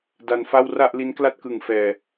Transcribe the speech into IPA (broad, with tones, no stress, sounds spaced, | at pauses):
d a˧ n f a˥˩ w r a˥˩ ʔ l i˦˥ n k l a˥˩ t̚ k ɯ˨˩ ŋ f ɛː˨˩